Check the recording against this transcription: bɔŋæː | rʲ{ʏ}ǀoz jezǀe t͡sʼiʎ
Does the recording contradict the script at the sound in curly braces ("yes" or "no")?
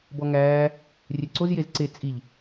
yes